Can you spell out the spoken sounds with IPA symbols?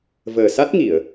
v əː˨˩ s a˦˥ t̚ ŋ i˨˩˨ ə̯

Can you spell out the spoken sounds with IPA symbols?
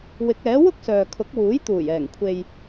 w ɪ˨˥ k̚ ɛː˨˥ w ʊ˥ k̚ s œː˨ kʰ ʊ˨˥ k̚ w uː˨˥ j t̪ uː˨˩ j ɛː˨˩ ŋ kʷʰ e˨ j

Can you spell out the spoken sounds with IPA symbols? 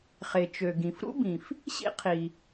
χ e˩ t͡ʃ ø˩ ɡ ĩ˩ f ɾ ṵ˥ b ĩ˩ f | ɕ ḭ˥ qʰ i˩

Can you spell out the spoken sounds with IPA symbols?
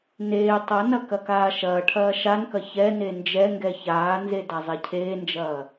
n eː tˤ ɐ n ɐ k ɐ k aː ʃ ɐː ʈʰ ɐː ʃ a n k ɐ ç ɛ n e n d͡ʒ ɛ ŋ ɡ ɛ ç aː n z e d a zˤ e cʰ eː n d͡ʒ ɐː

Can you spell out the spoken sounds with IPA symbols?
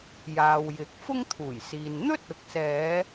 j aː˨ w j ɪ˨˥ k̚ f ʊ˥ ŋ t̪ʰ uː˨˩ j s iː˨ n n̪ ɵ˥ t̚ ʊ˨ k̚ s ɛː˨˧

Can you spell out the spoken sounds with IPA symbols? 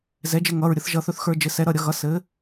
z ɛ˩˥ d͡ʒ ɘ˧ ŋ ʌ˩˧˩ ɹ ɾʲ ə˧ θ ʒ ʌ˧ θ ɵ˧ θ x ə˞˧ d͡ʒ ɘ˩˥ s ɛ˩˥ ɾ ʌ˩˧˩ ɾʲ ʌ˧ ɣ ʌ˩˥ s ɘ˩˥

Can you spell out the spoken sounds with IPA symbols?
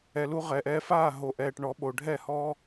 ɛ˨ l u˧ ʁ ɛː˨ ʔ ɛː˧ f aː˦˨ ɦ o˨ ʔ ɛː˨ ʈ ɳ ɔ˨˦ ɓ o˨ ɖʱ ɛ˦˨ h ɔ˦

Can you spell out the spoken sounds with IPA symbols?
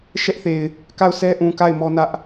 ʃ ɛ˦ ʔ θ e˨ ɪ̯ | k a˦˨ ʊ̯ sʰ ɛ˦ ʔ ũ˨ k a˦˨ ɪ̯ m ɔ˦ n ä˦ ʔ

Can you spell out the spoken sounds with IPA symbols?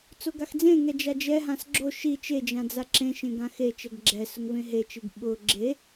t͡s o ɡ a x d͡z ẽ ŋ ɛ d͡ʒ a d͡ʒ ɛ ɦ ã s ɡ͡ǁ o ʃ i t͡ʃ e d͡ʒ ã d͡z a ǁ ẽ ʃ ẽ ɡ ã x e t͡ʃ ɛ ɡ ɡ͡ǁ ɛ s ʊ ŋ v ẽ ɦ e t͡ʃ i ɡ ɓ ʊ ɡ͡ǁ e

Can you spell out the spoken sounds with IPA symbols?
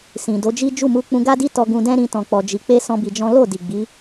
s ĩ˨ d o˨˦ d͡ʒ i˦ d͡ʒ u˦˨ m u˧ k͡p ũ˧ ɡ a˦ d i˦ t ɔ˧ ɡ ũ˧ d ɛ̃˦ ɾ ĩ˧ t ɔ̃˨ k͡p ɔ˨ d͡ʒ i˨ k͡p e˧ s ɔ̃˦ b i˧ d͡ʒ ɔ̃˦ l o˦˨ d i˨ ɡ͡b i˨˦

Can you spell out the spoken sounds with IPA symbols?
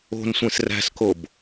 o̤ n sʷ ẽ s r æ̤ s k o b

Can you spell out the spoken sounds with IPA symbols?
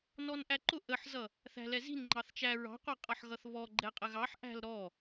n ɔ n ʔ æ ǃ ʊ ʔ ə ħ z ʌ | θ æ̤ l ɛ z i̤ n ŋ͡ǃ ɑ θ t͡ʃ æ ɹ ɑ̤ qʷ ʌ qʼ ʌ ħ ɣ ʌ θ β ɔ ɡ͡ǃ ɛ qʼ ə ɣ ɑ ħ ʔ æ̤ l ɾ ɔ

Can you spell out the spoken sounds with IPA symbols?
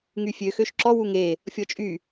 ŋ y fʲ ø x ø ʃ ǁ ɔ w u ŋ e | fʲ ɔ t͡ʃʼ y

